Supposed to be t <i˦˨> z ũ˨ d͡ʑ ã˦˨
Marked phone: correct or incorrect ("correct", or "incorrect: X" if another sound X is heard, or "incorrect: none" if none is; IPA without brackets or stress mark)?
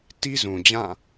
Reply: incorrect: i˦